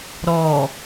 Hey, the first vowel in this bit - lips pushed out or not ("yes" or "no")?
yes